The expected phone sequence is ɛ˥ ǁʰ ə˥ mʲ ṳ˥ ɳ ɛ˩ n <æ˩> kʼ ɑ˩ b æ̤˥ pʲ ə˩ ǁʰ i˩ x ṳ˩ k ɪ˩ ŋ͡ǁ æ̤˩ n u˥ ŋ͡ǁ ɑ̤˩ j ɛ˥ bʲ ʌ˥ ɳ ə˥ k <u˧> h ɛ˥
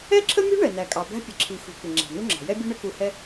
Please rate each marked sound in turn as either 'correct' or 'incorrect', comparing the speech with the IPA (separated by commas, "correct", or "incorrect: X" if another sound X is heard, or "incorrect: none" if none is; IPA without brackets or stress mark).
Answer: correct, correct